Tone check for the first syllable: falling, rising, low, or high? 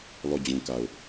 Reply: falling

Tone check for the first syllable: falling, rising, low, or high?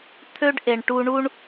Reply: high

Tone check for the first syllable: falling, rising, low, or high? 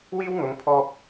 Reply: high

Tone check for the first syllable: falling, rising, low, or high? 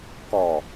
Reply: low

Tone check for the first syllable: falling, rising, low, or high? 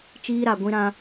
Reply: high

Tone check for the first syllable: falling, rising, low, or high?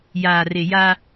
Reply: low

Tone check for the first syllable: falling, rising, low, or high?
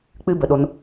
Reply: high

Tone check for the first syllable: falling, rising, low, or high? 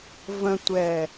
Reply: low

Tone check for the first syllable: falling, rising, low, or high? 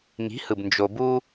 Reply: rising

